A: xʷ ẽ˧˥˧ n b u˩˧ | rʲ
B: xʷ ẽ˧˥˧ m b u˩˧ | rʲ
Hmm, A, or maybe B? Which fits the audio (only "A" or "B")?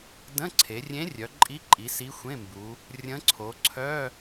B